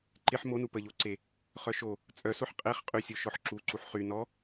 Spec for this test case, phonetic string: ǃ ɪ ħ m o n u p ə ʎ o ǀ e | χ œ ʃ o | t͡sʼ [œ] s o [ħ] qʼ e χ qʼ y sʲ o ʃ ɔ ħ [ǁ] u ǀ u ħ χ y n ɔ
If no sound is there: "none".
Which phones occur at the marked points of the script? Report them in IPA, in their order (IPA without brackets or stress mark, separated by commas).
œ, ħ, ǁ